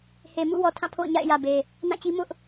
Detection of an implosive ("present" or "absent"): absent